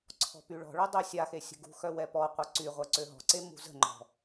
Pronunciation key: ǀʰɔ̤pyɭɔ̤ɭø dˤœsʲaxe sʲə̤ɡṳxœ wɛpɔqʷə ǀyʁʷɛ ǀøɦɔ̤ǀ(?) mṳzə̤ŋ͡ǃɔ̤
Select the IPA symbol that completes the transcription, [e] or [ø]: e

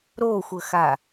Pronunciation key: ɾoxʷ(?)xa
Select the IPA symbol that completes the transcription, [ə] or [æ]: ə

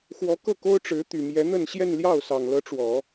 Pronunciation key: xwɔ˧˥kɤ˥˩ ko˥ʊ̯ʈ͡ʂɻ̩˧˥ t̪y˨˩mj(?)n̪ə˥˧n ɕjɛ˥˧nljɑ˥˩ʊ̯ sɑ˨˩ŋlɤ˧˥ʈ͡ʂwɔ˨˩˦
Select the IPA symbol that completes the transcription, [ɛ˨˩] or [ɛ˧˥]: ɛ˧˥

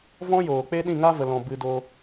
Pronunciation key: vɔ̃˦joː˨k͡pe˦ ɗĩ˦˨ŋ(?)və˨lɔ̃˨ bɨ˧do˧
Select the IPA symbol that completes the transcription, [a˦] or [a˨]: a˦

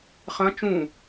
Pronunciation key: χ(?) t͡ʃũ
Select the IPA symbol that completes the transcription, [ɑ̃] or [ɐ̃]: ɐ̃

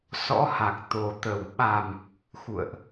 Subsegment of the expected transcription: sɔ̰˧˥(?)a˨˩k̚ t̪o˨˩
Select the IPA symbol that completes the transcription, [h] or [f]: h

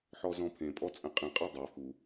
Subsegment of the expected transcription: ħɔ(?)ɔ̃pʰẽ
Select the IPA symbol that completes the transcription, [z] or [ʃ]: z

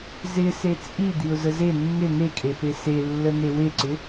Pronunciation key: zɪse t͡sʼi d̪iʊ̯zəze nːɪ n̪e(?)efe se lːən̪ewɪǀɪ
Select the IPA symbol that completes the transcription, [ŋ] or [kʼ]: kʼ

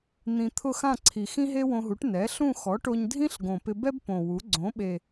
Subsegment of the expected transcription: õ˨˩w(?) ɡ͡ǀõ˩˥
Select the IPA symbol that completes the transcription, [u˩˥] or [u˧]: u˩˥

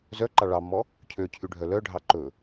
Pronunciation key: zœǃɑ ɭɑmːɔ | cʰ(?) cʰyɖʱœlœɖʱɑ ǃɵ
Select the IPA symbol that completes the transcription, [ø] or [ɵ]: ø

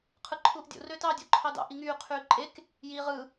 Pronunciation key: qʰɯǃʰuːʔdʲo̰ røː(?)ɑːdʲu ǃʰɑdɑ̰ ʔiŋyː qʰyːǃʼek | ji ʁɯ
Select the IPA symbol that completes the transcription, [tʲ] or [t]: t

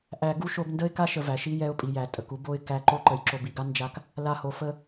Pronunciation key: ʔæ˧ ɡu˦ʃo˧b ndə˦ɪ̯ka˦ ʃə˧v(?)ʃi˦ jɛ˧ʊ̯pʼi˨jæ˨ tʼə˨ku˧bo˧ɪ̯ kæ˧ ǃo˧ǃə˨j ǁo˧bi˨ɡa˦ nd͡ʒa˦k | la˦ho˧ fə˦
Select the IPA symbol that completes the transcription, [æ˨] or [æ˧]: æ˨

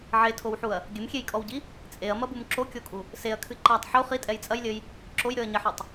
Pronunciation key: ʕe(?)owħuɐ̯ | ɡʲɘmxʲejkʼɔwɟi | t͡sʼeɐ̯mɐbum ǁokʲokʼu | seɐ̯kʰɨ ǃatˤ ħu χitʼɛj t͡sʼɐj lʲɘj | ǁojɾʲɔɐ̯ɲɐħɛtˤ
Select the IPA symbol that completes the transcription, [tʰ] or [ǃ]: tʰ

